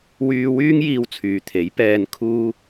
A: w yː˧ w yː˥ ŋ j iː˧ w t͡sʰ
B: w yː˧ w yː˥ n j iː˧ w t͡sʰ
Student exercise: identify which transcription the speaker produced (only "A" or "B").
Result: A